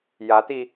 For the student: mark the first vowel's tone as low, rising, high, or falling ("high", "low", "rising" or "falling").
rising